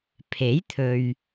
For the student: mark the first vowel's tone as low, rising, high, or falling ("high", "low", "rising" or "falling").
rising